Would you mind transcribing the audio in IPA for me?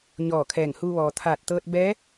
ɲ ɔː˧˩ kʰ ɛː˧˩ ŋ h uː˧ ʋ ɔː˩ t̪ʰ aː˧˩ t̚ t̪ ɤː˧ t̚ b ɛː˧˥

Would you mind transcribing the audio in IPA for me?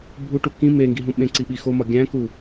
bʱ u ʈ u k ĩ m e ŋ ɡ i ɦ ũ ɓ ẽ ǀ i ɓ i x o m ɒ ɡʲ æ̃ k u

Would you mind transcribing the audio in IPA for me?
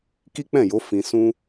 k i˦ k͡p ɛ̃˦˨ j o˨˦ f ĩ˧ s ũ˦

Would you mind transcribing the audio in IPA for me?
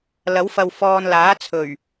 l ɐ˨˥ w f ɐ˨ w f ɔː˨ n l aː˨˥ t͡sʰ ɵ˨˩ ɥ

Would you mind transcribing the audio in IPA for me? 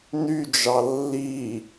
n y d͡ʒ ɑ lː i

